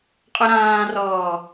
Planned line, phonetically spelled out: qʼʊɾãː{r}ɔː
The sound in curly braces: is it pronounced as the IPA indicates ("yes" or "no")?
yes